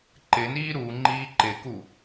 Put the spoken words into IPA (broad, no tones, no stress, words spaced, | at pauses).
ǃɪniː ɾu ŋ͡ǃiːǃɪku